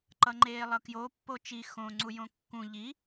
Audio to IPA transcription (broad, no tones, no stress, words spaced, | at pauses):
ǃʌŋ͡ǃeːlˠʌkjo pːot͡ʃi xõ ŋ͡ǀujõkːũ ʎi